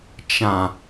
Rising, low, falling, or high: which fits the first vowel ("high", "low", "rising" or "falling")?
low